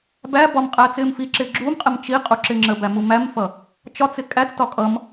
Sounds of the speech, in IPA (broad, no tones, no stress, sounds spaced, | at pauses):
b æ b ɒ m qʼ æː t͡s ɪː m f i ǁ ɪː ɡ͡ǁ u m qʼ ɪ m t͡ʃ i qʼ u ǁ ɪ ŋ͡ǁ ə b æ m u m æ m f ʌ | t͡ʃ ɒ t͡s ɪ kʼ æ t͡s t ɒ kʼ ʌ m